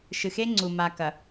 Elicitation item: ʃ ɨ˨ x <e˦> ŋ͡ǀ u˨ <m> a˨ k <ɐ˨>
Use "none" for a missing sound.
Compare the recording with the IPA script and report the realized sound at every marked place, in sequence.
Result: e˦, m, ɐ˨

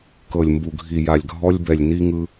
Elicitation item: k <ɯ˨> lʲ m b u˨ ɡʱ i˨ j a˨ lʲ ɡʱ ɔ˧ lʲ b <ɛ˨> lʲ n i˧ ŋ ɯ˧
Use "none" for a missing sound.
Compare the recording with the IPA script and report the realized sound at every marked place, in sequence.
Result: ɤ˨, ɛ˨

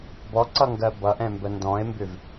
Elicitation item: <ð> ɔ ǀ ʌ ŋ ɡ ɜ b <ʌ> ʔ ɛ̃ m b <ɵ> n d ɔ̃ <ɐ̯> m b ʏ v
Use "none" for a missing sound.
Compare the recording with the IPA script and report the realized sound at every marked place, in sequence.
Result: b, ʌ, ə, e̯

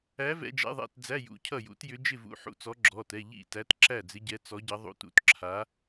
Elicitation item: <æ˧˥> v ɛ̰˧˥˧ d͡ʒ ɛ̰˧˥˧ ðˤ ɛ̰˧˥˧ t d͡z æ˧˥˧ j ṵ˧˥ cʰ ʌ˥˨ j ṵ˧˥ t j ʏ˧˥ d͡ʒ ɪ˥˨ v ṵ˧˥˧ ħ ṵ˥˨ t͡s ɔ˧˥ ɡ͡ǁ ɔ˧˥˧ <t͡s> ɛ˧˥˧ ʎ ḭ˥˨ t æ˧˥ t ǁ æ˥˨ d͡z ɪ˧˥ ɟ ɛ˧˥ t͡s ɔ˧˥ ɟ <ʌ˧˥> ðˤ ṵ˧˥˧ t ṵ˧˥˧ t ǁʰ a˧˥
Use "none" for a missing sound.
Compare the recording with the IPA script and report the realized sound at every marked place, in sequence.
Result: æ˧˥, t, ʌ˧˥

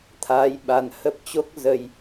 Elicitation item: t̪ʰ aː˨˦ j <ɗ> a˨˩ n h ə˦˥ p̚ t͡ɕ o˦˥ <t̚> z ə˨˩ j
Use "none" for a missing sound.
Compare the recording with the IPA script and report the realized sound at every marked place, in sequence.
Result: ɓ, k̚

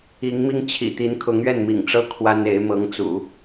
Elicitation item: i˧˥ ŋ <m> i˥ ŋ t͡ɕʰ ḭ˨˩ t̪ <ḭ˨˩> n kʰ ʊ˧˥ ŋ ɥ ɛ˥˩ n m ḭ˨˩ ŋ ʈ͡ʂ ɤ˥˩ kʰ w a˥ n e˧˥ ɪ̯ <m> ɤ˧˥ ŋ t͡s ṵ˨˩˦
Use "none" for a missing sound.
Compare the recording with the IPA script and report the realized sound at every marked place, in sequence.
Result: m, i˧˥, m

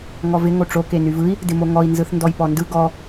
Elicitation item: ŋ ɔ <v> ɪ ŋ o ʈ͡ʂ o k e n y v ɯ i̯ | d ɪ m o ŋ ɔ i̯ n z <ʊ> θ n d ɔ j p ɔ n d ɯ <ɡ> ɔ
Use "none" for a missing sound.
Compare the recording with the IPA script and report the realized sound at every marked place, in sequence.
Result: v, ɯ, ɡ

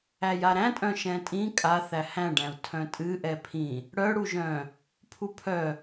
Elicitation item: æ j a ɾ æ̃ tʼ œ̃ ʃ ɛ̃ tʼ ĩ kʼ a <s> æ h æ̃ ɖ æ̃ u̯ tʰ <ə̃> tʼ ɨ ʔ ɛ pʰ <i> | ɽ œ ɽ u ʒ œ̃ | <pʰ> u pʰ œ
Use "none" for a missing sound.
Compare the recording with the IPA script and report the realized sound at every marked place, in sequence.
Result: θ, œ̃, ĩ, pʰ

